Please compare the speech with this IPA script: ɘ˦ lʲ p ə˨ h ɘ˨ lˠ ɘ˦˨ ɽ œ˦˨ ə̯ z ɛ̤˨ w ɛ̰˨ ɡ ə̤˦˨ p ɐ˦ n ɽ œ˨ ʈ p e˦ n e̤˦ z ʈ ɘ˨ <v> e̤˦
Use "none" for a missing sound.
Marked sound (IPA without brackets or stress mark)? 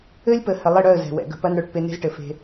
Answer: f